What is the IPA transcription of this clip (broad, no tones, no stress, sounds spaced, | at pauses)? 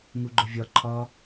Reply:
ŋ u ɡ͡ǃ ʊ vʲ ɒ ǃʰ ɒ